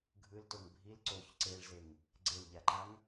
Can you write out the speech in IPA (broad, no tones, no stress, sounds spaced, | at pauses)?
ɡʱ ɯ l t o ŋ bʱ i l ǀ o ç ǀ e ɭ z e ŋ | ɡ͡ǀ e l ʎ a ǃ a ŋ